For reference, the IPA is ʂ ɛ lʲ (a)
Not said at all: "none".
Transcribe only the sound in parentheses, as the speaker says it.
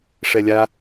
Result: a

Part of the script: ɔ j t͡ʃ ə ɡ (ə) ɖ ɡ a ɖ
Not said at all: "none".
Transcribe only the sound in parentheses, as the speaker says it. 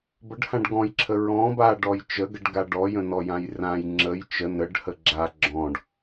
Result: ə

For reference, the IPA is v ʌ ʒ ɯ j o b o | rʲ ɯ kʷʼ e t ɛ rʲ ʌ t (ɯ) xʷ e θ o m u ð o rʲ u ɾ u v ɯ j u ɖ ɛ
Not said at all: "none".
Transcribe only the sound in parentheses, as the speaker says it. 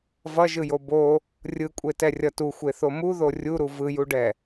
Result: u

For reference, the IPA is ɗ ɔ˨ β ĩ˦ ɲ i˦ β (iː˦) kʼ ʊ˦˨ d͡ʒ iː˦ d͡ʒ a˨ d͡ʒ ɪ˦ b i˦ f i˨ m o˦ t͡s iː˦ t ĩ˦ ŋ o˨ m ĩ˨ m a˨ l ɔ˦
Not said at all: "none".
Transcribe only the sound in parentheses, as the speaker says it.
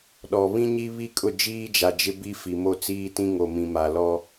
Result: i˦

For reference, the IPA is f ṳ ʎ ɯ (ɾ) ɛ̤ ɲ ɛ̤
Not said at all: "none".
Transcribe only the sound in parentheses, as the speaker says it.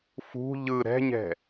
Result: ɾ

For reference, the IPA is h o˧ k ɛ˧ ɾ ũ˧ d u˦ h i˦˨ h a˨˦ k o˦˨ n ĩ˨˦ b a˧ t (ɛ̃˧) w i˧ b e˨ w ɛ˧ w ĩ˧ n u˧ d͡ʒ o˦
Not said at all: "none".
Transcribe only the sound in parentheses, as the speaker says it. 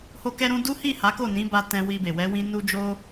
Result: ɛ̃˧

